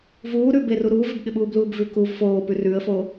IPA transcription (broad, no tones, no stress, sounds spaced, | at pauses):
v uː ɾ ʉ b e r u ɾ uː v ɪ b ɠ ɪ ɓ uː b l uː b v ʉ k u v f oː p ʉ r ʉ ə̯ f o